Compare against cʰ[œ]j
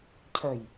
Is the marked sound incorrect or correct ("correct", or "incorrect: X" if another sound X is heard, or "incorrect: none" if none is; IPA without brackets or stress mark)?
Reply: correct